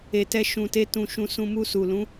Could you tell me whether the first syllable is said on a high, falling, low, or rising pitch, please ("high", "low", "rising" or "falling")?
low